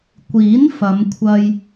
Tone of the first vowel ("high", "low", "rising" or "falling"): rising